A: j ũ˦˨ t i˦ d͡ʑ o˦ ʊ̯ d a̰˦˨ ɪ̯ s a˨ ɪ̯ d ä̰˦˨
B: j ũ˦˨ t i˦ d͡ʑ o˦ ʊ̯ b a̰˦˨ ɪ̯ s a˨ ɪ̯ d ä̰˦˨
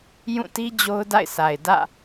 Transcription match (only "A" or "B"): A